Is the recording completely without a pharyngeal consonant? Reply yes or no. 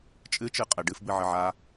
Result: no